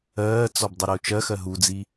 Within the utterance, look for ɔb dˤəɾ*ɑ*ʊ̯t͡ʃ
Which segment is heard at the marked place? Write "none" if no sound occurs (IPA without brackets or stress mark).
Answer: ə